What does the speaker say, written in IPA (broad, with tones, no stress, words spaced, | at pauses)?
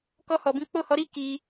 kɔ˧hɔ˨bĩ˨˦ k͡po˦˨hɔ˨˦ɾi˦ ki˧